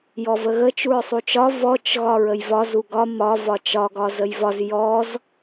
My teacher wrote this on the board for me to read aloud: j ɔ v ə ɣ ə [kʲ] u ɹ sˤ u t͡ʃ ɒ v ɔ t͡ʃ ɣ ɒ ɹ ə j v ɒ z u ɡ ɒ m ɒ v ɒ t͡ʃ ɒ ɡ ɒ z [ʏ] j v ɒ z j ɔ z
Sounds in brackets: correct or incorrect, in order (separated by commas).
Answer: incorrect, incorrect